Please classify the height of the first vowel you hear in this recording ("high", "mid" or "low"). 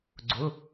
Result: high